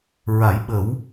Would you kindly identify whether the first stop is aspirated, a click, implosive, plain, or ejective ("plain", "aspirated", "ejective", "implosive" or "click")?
implosive